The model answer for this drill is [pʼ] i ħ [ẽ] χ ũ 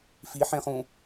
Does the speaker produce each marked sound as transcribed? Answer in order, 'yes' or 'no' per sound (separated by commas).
no, yes